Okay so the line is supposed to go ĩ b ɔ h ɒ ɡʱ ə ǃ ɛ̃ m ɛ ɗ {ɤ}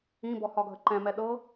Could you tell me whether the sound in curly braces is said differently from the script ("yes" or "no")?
no